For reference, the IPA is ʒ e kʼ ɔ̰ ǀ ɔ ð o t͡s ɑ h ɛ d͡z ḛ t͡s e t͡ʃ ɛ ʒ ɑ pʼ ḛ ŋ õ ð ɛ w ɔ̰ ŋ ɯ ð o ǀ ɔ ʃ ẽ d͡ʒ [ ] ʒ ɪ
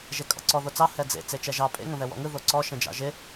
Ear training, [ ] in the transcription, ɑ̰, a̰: ɑ̰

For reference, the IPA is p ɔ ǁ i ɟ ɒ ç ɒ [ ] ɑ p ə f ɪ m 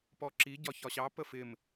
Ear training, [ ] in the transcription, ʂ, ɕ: ɕ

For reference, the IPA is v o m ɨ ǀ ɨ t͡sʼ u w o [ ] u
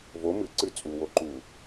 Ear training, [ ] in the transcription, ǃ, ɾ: ǃ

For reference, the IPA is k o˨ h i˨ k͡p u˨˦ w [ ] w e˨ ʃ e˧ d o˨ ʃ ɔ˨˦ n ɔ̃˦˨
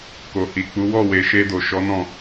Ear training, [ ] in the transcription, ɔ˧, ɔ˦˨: ɔ˦˨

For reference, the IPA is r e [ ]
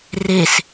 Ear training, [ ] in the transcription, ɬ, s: s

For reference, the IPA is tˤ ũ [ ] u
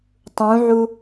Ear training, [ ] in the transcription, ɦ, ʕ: ʕ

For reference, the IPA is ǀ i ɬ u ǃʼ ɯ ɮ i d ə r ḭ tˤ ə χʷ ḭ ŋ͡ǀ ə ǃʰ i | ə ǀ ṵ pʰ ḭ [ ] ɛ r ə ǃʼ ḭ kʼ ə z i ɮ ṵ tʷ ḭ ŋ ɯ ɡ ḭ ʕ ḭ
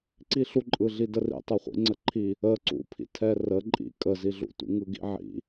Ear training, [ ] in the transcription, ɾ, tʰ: tʰ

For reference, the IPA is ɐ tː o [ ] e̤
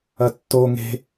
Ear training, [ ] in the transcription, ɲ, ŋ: ŋ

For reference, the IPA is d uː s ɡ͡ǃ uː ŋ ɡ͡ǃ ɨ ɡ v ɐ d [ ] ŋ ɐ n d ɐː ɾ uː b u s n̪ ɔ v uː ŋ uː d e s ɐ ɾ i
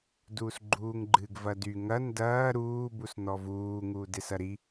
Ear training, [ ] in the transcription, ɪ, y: y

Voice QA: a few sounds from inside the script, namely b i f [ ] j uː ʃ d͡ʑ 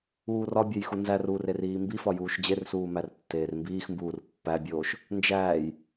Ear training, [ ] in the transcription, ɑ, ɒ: ɒ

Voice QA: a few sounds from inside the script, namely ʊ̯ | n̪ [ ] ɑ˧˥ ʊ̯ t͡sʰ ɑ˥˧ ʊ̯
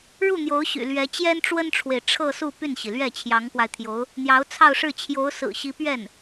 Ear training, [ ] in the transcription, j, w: j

